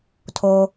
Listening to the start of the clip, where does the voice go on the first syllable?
high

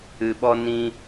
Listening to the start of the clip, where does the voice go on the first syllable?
low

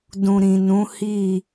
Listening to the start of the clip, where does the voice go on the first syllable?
low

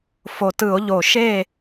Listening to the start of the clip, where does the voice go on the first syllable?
low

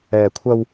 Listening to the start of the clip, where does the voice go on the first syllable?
low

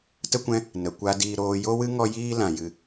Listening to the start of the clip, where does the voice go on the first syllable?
high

